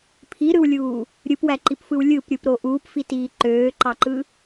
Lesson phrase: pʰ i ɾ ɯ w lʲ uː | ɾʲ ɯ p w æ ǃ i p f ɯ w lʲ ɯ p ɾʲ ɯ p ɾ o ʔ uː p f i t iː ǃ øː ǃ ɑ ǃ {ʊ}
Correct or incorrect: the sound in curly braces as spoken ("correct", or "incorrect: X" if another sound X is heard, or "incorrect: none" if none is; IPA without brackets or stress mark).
incorrect: ɯ